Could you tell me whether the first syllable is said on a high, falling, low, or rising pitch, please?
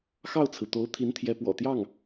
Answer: falling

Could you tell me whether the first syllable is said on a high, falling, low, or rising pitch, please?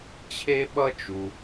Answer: high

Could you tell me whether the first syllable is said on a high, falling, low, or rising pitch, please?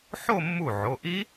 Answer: falling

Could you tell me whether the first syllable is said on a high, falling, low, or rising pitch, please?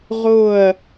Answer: falling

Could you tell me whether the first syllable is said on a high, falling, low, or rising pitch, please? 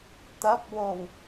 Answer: rising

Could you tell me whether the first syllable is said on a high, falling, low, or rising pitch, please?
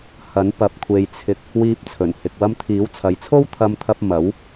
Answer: rising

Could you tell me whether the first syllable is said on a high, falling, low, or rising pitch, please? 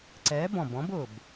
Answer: rising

